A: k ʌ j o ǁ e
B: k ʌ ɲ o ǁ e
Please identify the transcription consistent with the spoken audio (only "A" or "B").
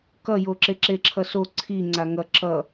A